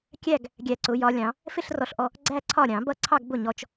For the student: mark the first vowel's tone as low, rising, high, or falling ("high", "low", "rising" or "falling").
falling